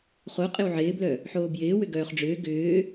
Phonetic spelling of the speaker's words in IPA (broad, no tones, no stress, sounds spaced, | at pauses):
χ o qʼ ɪ w ʕ ɪː b l œ | ħ oː b j ɪː w ʏ ɡ œː χ ɖ͡ʐ ʏː ɡ ʏː